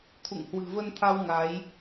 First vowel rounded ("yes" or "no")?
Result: yes